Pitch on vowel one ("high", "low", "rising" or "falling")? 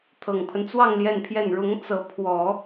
low